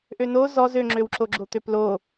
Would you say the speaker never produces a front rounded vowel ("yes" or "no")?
no